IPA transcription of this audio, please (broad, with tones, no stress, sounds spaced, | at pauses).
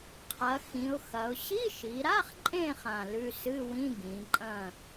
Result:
qʰ ɐ˩˧ x ĩ˩˧ ʊ̯ x ɐ˩˧ ʊ̯ ɕ i˧˥˧ ʃ i˩˧ ɾ a˧˥˧ χ ǃʼ ẽ˦˨ χ ã˦˨ l ʉ˧˥˧ s ɨ˧˥˧ w ĩ˧˥˧ ɡ ĩ˩˧ ǃʼ ɐ̃˦˨